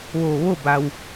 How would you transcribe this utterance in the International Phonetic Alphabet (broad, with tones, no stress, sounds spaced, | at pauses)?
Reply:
ʋ oː˧˩ ʋ o˥˨ b a˩ w